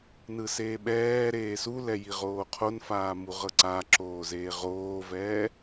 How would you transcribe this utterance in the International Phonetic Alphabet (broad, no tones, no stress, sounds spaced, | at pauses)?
n ɯ s eː ɓ ɛː ɾ eː s u l ɛ j i ʁ oː qʰ o n f aː m u ʁ ɤ ǀ a ǁ oː z eː ʁ oː v ɛː